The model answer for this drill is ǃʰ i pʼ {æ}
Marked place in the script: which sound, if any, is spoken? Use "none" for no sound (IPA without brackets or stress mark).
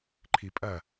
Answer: ɐ